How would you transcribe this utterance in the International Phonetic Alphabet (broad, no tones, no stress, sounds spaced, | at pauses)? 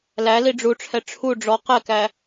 l æ l i ɖ͡ʐ u ʈ͡ʂʰ ɛ ʈ͡ʂʰ u ɖ͡ʐ ɔ q ɛ k æ